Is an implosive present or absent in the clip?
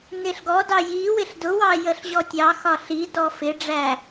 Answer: absent